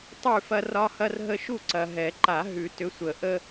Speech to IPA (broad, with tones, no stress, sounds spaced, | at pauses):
tˤ ʉ˥˨ f ɐ˦ r ɒ˦ h ɐ˦ r ɦ ə˦ ʃ u˥˨ ǀ ɐ˨ ɦ ɛ˨˩˦ ǃ a˨˩˦ ɦ ʉ˨˩˦ t ʏ˨˦ sʷ ə˨˩˦ ʔ ə˦